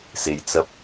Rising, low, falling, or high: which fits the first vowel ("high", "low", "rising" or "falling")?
low